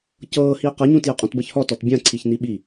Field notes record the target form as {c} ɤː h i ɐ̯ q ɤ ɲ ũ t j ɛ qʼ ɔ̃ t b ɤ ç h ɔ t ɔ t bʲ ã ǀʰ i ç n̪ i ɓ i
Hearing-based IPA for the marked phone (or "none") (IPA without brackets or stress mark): c